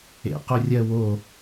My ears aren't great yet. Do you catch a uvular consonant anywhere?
yes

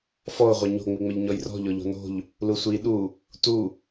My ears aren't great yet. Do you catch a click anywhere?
no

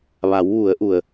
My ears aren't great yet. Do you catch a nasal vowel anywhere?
no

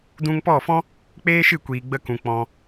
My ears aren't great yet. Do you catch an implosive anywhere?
no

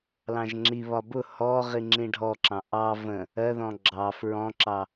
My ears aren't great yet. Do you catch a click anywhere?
yes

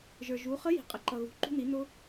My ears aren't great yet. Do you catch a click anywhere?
yes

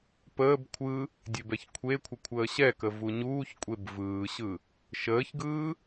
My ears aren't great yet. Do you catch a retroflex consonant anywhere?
no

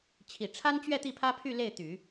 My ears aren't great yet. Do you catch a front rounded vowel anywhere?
yes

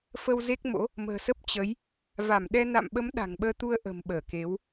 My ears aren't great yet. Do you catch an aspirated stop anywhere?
no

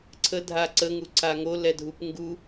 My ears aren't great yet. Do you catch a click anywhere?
yes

